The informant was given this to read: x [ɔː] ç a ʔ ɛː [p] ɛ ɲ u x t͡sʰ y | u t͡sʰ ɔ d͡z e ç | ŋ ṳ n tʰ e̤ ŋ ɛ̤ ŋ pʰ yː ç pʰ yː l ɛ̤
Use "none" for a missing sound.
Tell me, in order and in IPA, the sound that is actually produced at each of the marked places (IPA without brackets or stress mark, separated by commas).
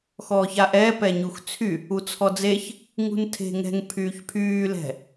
ɔː, p